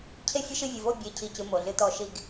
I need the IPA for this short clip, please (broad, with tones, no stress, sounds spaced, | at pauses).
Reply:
cʰ e˦ fʲ ə˦ ʃ ɨ˦˨ vʲ ɨ˨ v o˦˨ bʲ e˨ cʰ i˦˨ c ɨ˦ m o˨ ɮ ɨ˦ t ɔ˦ ʃ i˦˨ ɡ